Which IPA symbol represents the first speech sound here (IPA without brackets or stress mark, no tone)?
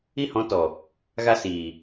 i